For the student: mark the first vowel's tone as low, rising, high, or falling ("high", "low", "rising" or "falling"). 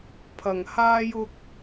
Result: low